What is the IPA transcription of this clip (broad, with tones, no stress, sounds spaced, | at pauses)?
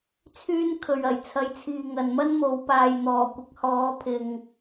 t͡sʰ yː˥ n kʰ ɵ˨ ɥ ɐ˨˩ j t͡sʰ ɐ˨˥ j t͡sʰ iː˨ ŋ ɐ˨ n m ɐ˥ n m o˨˧ w p aː˨ j n̪ ɔː˨˩ kʷ ɪ˨˥ k̚ h ɔː˨˥ pʰ ɪ˨ ŋ